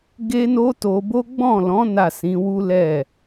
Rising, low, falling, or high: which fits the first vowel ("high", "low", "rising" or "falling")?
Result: high